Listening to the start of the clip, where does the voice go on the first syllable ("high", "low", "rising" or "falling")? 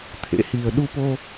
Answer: rising